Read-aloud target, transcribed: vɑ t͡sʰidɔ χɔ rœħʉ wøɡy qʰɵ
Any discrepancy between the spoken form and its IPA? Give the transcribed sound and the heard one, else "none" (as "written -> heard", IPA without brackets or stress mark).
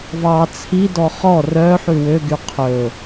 none